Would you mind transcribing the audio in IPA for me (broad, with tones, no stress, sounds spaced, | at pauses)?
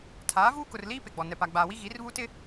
tʰ aː˨˦ v uː˦ k ʊ˨ r l iː˦ p e˨ ɡ͡b ɔ˨ n ɛ˨ p a˨ ɡ͡b aː˨ w i˦ ɣ i˨˦ r β u˦ t ɪ˦